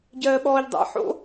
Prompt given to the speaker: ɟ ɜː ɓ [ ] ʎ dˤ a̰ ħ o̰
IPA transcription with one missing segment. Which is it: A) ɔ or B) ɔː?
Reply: B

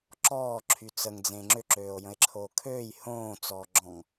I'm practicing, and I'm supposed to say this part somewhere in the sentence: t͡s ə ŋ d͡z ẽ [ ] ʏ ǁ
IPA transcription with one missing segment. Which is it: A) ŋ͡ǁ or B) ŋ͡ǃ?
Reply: A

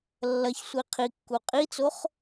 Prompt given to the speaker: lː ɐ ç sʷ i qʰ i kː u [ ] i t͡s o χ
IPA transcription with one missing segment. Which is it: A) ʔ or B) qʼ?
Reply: B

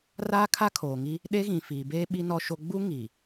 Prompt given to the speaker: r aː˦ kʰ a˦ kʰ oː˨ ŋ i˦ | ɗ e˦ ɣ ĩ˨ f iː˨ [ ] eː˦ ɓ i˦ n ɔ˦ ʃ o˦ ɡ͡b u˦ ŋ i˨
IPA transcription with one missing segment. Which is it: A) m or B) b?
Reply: B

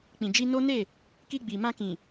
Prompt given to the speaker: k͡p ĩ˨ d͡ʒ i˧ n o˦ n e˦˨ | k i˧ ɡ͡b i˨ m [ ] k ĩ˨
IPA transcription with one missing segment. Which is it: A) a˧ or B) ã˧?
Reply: B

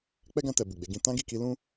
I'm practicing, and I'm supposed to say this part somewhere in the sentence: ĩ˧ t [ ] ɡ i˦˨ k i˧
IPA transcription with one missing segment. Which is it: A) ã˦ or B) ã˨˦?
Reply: A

